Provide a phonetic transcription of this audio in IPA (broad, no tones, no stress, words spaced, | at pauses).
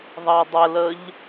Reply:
ðˤɑdˤələʎ